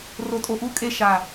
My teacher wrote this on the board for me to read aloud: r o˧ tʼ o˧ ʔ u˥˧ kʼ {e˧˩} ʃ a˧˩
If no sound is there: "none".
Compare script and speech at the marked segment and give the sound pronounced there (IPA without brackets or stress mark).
e˥˧